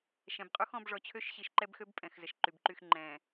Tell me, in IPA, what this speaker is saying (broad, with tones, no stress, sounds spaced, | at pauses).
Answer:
ʃ ɛ̃˨ b qʼ u˦ x ɔ̃˨˦ b ʐ ɔ˨ t͡ɕʰ ø˦ ʃ ɕ i˨ ʃ ǃ ɛ˦ b x ø˦ b pʼ ɛ̃˨ x z ə˨ ʃ ǃ y˨ b ǃ y˦˨ x ŋ͡ǃ ɛ̃˨